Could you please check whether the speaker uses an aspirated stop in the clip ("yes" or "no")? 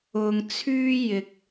yes